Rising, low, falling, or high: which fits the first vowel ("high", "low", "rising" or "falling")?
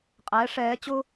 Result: rising